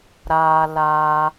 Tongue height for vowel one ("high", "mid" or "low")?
low